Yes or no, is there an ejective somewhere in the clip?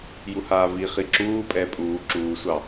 yes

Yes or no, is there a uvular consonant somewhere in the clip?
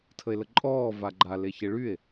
no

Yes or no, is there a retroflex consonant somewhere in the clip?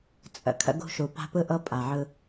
no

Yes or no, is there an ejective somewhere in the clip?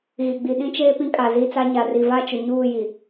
yes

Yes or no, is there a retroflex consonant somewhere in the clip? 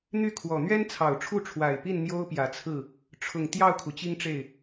yes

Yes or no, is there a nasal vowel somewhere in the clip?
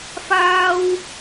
no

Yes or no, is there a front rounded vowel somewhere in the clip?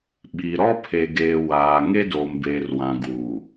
no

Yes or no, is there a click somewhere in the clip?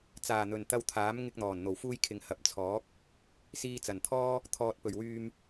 no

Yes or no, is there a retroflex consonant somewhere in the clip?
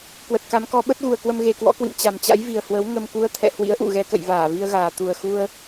no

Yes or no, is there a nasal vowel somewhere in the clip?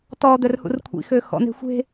no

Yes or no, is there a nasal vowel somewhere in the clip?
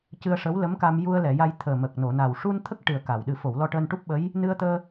no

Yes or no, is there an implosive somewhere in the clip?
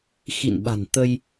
yes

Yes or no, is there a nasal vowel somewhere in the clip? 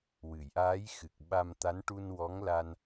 no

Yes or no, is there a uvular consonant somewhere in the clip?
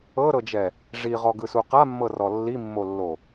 yes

